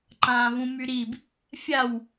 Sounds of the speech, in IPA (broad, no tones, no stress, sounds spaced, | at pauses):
ǃ ãː v ũ m y ɾ i b | fʲ a w